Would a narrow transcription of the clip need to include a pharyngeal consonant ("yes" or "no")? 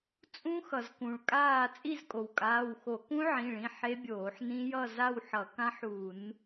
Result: yes